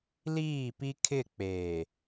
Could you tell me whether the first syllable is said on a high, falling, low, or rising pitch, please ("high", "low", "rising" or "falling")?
falling